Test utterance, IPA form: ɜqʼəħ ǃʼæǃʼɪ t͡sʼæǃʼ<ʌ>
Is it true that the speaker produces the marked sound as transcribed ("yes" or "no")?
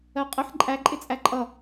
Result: yes